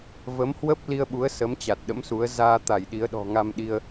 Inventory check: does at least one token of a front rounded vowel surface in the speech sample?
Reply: no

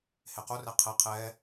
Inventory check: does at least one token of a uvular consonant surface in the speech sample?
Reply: yes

